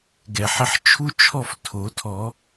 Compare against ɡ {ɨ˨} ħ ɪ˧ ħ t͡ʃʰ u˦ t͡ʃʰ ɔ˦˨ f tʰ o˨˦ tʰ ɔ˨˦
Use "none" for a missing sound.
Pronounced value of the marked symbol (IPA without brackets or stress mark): ɛ˨